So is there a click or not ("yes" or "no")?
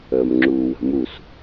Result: yes